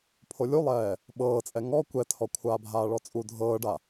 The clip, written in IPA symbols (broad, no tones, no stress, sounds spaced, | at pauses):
pʰ o lʲ u lˠ ɛː | ɓ ɤː t͡sʼ ɛ ŋ ɔ kʷ ɛ tʰ ɔ kʷʰ aː bʱ aː ɭ ɔ t͡sʼ u dʱ ɤː ɖ a